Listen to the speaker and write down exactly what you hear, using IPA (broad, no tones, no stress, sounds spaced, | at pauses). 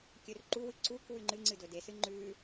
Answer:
kʲ ɵ r ǃ u w ɨ ǀ u k w ʉ ŋ͡ǃ ɨ ŋ͡ǀ ɨ d ɵ d e s ɨ ŋ͡ǃ ʉ